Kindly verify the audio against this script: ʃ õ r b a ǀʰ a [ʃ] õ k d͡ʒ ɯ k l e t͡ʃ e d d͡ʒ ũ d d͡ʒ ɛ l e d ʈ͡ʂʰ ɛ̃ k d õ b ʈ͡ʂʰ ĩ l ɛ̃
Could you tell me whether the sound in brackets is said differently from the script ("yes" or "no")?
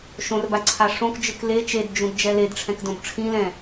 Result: yes